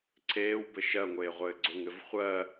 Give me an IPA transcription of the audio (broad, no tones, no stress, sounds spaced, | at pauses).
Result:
ǀʰ eː w b ɘ ʃ ɜ ŋʷ eː ʁʷ ɘː ɡ͡ǀ ʊ ŋ ɘ v χʷ ɜ